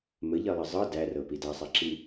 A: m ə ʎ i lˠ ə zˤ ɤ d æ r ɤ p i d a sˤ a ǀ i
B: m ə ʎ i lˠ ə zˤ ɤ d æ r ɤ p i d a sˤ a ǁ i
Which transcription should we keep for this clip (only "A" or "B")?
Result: B